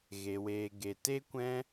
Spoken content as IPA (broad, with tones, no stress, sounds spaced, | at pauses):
ɣ e˨ w eː˨ ɡ e˨ t e˦ kʷ ɛ̃˦